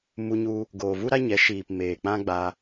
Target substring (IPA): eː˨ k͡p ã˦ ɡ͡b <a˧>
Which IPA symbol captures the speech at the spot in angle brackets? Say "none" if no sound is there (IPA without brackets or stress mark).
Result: a˧